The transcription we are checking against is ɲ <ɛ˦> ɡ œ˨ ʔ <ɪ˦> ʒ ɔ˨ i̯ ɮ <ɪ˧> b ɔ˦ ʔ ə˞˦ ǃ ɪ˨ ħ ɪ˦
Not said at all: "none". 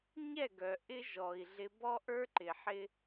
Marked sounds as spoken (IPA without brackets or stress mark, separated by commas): ɛ˦˨, ɪ˦, ɪ˧